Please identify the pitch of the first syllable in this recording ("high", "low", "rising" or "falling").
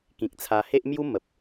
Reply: low